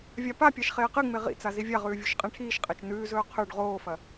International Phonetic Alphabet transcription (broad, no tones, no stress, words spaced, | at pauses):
vʲapapʲaʃ χeːqɨŋ͡me ʁḭt͡sa zivʲaʁʉː vʲuʃqʼẽʈʰiːʃqʼet͡ʃ nʉːzɵː qʰʉɖ ʁoːfɐ